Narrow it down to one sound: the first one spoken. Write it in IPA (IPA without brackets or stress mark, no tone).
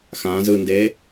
x